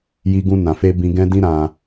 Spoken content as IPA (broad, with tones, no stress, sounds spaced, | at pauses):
j i˧ ɡ ũ˧ n ã˨ f e˧ b ĩ˧ ɡ ɛ̃˦ d ĩ˦ ɾ ã˧